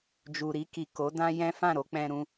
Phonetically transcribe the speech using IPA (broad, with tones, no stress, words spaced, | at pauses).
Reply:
d͡ʒu˨ɾi˧ki˨ ko˨˦dã˦jɛ̃˦ fã˦˨ɾo˧ k͡pɛ̃˧ɾũ˧